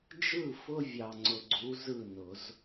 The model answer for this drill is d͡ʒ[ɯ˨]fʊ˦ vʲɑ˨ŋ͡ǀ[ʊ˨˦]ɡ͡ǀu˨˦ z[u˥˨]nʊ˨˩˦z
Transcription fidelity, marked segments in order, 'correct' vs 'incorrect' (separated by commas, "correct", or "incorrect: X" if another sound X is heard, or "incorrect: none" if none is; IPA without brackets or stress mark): incorrect: ɯ˥˨, incorrect: ʊ˨, incorrect: ɯ˥˨